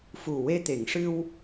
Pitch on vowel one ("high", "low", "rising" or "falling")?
low